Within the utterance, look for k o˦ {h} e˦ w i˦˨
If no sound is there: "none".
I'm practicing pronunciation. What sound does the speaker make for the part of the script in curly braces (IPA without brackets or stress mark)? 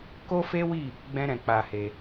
f